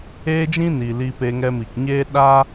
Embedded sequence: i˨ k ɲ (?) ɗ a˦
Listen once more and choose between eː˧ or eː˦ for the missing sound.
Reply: eː˦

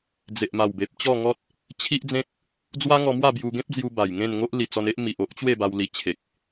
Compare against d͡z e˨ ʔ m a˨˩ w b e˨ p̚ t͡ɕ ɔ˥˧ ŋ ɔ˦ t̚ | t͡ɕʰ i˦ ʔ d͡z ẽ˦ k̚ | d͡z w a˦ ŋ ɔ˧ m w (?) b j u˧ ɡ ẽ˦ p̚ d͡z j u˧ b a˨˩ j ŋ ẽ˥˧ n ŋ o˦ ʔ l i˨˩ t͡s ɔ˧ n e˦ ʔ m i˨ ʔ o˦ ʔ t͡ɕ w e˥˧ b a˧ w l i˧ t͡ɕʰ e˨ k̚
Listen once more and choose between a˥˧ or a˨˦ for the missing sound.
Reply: a˥˧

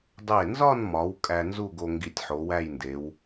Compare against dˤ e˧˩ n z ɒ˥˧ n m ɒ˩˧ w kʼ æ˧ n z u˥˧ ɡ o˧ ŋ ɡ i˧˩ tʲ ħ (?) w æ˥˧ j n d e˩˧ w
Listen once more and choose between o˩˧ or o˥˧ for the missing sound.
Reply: o˩˧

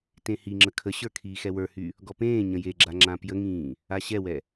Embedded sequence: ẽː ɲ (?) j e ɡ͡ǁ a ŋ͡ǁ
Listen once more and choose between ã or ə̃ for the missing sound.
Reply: ə̃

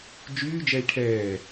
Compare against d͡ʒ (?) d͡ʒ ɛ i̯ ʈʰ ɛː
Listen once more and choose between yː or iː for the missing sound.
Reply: yː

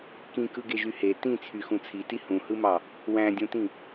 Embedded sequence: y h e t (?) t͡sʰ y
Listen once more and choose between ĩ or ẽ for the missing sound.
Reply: ĩ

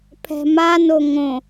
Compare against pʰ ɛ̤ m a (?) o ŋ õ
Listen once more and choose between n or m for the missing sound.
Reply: n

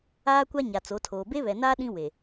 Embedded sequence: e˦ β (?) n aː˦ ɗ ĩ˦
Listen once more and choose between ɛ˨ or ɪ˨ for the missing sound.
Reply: ɛ˨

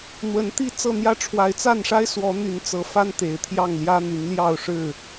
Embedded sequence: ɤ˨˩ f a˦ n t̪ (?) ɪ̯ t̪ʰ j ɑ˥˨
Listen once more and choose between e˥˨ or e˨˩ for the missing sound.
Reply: e˨˩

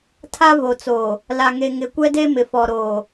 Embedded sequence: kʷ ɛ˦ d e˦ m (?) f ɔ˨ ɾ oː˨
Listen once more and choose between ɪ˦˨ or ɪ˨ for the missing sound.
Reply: ɪ˨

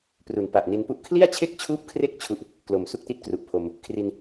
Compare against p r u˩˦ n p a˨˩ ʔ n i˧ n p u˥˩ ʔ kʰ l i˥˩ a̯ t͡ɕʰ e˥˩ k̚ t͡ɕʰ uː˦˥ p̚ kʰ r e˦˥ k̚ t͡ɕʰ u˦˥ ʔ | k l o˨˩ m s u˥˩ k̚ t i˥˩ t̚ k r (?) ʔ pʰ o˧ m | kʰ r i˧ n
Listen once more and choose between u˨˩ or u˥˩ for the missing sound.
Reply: u˨˩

